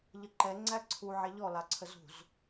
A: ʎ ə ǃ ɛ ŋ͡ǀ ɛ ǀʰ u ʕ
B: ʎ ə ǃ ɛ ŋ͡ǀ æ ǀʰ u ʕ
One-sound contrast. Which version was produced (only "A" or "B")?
B